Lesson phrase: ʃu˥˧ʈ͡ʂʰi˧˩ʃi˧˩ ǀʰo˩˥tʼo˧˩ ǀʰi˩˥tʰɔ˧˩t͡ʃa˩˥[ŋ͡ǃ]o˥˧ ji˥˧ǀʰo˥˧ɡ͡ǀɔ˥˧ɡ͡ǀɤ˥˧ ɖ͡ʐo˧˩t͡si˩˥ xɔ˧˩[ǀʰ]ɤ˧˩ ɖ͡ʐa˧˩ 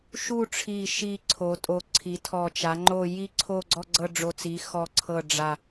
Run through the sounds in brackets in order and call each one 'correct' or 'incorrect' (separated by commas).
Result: correct, correct